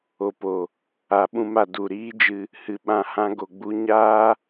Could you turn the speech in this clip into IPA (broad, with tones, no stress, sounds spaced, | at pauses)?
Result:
o˨ p o˨ | a˨ ɓ ũ˧ m a˨ d u˨ ɾ iː˦ d͡ʒ ɨ˧ | h ɨ˨ ɓ ã˦˨ h ã˦ ɡ o˨ ɡ͡b u˦ ɲ aː˦